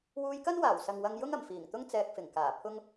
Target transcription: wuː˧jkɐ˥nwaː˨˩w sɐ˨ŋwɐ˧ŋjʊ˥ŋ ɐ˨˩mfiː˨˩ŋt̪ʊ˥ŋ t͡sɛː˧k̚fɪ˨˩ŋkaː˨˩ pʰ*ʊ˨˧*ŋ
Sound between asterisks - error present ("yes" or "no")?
yes